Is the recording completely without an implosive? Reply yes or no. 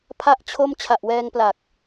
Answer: yes